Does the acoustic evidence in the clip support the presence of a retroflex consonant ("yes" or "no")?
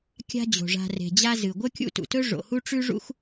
yes